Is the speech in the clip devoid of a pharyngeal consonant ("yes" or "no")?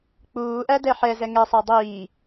no